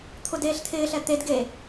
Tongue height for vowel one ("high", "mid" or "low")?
high